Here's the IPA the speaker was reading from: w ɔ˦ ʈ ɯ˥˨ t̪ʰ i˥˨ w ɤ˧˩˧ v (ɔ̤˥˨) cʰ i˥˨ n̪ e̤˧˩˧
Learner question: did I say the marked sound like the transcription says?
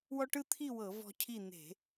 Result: no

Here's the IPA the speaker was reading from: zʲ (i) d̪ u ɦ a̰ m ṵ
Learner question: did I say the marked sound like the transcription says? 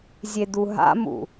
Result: no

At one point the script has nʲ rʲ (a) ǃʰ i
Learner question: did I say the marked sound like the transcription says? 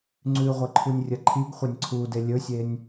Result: no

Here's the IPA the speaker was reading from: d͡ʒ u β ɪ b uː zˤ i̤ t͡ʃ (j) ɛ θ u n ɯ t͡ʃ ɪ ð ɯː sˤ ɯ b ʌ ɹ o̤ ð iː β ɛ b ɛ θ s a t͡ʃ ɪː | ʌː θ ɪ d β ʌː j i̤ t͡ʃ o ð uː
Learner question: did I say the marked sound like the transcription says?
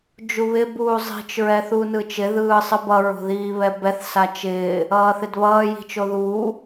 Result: no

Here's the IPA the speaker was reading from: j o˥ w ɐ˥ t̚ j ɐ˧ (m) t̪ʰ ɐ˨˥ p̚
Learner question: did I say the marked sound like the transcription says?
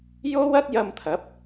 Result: yes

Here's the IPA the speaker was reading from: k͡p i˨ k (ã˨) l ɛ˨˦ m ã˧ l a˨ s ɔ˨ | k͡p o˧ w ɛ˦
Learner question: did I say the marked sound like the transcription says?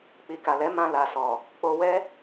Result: no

